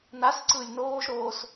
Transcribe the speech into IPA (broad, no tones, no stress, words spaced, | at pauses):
nasǀɯːlʲ noːʒɾoːs